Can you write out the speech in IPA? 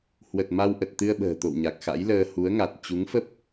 h w ə˨˩ t̚ m a˧ w ʔ ə˨˩ t̚ t̪ ɨ˧ ə̯ ɓ ə̤ː˨˩ t̪ o̰˧˨ w ɲ a˨˩ k̚ x a̰˧˥ j l əː˧ h u˨˦ ə̯ ŋ a˨˩ t̚ t͡ɕ u˨˦ ŋ f ə˦˥ p̚

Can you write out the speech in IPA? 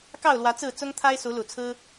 k ɑ˥˨ ʊ̯ l w ä˨˦ t͡s ɹ̩˥˨ t͡s ʊ˦ ŋ t̪ʰ a˦ ɪ̯ s u˨˦ l u˨˩ t͡sʰ ɹ̩˦

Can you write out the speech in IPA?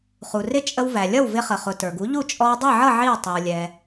χ u˩ r ɪ˥˩ t͡ʃʼ ə˧ w v æ˩ lʲ ʌ˥˩ w v ɪ˧ χ ə˩ χ ʊ˩ t ə˞˩ ɡ u˩˥ ʎ u˥˩ t͡ʃʼ ɔ˧ w dˤ ɛ˥˩ ʕ ʌ˥˩ ʕ i˥˩ w tˤ i˩ w lʲ ɛ˩

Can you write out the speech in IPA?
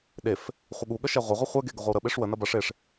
ɗ e f | χʷ ə ɠ u ɠ ə ʃ ɛ ʁʷ ɐ ʁʷ e χʷ ɛ ɡ e ɡ ə ʁʷ ɛ w ɾ ə ɓ e ʂ w ə n ɐ b ɐ ʂ e ʂ

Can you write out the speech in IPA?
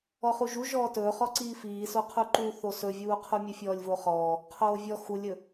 ɔ χ u ʒ u ʒ ɔː t ɵː χ ɔ ǀ iː f iː s o qʰ u ǃ uː θ o s ɵ vʲ uː qʰ u mʲ ɵ fʲ ɔː lʲ v o χ ɔː | qʰ oː vʲ ɔ x u lʲ ɵ

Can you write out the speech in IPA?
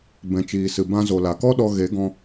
b ɛ̃˨ t͡ʃ iː˨ s ɨ˨ b ã˧ z o˨ l a˨ k ɔ˦ ɗ ɔ˧ ɣ e˨˦ ɡ ɔ̃˧

